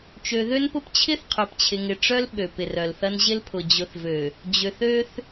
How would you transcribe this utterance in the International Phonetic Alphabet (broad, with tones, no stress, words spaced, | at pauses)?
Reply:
t͡ʃø˨ ðø˦npʊ˦p t͡ɕʰɪ˦θqʰœ˨pt͡ɕʰɪ˨ŋɪ˨ ʈ͡ʂœ˦l ɓø˨pɪ˨rœ˨lθɐ˦n ʑɪ˦lpʰʊ˨ d͡ʑʊ˨θvø˨ | d͡ʑø˨θø˦θ